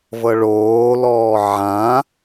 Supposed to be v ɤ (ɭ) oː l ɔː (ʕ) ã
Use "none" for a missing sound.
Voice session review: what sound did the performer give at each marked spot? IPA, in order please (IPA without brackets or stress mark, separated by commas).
ɭ, ʕ